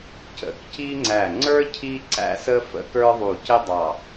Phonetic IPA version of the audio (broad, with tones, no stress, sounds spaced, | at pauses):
c ə̰˧˩ k c i˥ ŋ͡ǀ æ˧˩ ŋ͡ǀ ə˞˥ cʰ i˥ ǀ æ̰˥ s ə˥ f ə̰˥ k ə˞˥ ðˤ u˧˩ c ɪ˥ dˤ ɑ˧˩